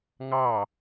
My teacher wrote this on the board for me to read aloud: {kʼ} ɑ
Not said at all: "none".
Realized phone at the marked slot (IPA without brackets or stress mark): ŋ